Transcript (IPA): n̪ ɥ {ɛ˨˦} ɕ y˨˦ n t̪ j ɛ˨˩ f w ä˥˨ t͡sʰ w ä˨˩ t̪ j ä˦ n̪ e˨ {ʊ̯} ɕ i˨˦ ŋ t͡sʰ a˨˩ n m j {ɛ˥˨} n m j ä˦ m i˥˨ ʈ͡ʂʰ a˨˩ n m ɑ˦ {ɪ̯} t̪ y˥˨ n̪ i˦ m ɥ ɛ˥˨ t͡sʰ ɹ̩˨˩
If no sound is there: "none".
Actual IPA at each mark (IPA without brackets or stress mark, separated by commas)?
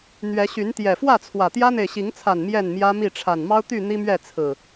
ɛ˨˦, ɪ̯, ɛ˥˨, ʊ̯